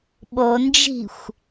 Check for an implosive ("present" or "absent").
present